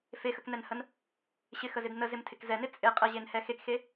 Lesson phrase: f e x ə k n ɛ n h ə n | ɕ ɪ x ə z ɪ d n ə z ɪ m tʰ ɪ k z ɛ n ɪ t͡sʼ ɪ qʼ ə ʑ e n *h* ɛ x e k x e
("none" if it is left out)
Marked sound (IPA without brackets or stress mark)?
h